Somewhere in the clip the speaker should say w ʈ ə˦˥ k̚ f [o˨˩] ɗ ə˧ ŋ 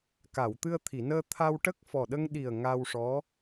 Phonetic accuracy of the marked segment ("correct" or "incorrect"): incorrect